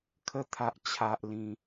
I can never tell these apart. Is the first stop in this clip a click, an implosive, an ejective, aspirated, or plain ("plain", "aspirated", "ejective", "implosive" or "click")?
aspirated